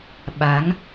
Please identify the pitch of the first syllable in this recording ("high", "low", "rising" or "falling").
rising